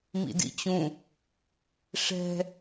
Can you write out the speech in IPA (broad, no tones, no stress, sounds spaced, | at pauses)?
m ḭ d ḭ t͡ɕ ũ | ʂ ɛ̤